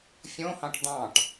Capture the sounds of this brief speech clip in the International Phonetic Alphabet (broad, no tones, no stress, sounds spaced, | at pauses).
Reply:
fʲ õ h ɑ̃ ʈ d̪ ɑ̃ ʈ